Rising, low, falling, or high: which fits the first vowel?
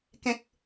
low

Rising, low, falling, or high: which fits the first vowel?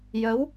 rising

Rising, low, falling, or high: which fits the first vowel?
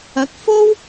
rising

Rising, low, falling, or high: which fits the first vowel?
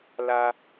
high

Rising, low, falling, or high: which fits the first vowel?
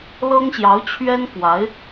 high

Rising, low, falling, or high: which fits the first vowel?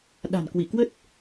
low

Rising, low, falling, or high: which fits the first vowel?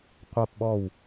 falling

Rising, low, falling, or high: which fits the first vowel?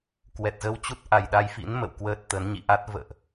low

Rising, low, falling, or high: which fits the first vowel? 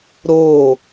falling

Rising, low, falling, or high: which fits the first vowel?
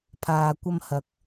low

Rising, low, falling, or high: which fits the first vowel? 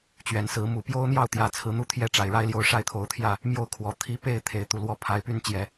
low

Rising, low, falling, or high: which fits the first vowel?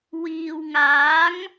low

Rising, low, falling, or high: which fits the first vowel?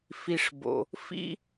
low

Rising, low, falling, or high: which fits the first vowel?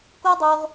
high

